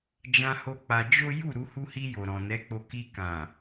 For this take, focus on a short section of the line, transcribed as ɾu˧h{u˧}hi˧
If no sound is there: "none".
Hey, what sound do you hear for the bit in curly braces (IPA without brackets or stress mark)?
u˧